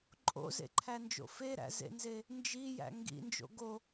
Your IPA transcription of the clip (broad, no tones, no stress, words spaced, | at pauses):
ǃʼo̰zḛǃʰænd͡ʒo̰ feɾæ̰zḛnze | nd͡ʒijæ̰ ŋɡḭnd͡ʒo̰ ɡo